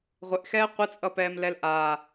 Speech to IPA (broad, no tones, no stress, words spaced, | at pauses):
ʁʷɪʔxɛː qʷɪt͡sʼʌpɛːmlɛl ʔa